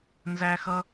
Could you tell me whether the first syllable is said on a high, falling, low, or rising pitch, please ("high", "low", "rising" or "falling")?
high